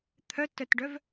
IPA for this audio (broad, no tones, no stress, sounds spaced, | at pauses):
t̪ʰ œ t œ t ɖ œ v